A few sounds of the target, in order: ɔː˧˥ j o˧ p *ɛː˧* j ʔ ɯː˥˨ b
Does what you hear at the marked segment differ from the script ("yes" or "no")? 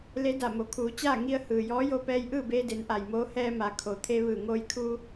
no